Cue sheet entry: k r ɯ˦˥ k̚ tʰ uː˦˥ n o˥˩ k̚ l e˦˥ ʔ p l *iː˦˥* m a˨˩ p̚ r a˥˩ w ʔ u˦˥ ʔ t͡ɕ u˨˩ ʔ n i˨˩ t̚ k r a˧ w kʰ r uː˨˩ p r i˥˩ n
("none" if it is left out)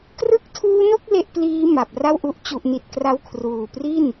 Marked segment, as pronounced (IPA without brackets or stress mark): iː˦˥